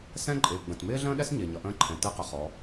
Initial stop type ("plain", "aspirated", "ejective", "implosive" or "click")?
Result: click